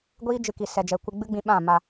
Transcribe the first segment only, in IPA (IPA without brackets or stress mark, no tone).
ɡʷ